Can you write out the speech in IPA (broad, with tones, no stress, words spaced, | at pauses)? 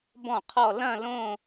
bɔ̃˥˩qʰɔ˥˧ lɐ̃˥˧lõ˥˧